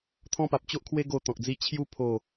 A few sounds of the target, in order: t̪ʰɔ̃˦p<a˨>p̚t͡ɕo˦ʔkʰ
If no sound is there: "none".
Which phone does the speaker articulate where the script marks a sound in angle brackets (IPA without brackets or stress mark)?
a˨